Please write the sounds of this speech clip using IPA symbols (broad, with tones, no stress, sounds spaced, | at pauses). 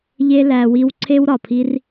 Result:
ʎ e˧ l æ˨ w i˧ w ǀʰ e˦ w ɾ ɒ˨ pʰ i˦ r